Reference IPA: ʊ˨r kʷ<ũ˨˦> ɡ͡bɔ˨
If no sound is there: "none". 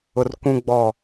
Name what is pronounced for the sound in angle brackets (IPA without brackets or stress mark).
ũ˨